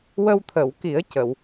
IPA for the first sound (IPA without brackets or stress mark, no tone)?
w